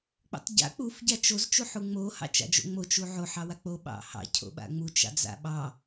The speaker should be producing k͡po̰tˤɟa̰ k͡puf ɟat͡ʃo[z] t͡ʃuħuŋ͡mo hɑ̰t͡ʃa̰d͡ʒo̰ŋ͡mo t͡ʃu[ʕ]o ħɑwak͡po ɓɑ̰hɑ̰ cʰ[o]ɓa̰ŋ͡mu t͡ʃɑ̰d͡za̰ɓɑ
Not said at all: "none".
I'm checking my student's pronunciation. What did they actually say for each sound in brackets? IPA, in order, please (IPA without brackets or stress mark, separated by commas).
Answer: z, ʕ, o̰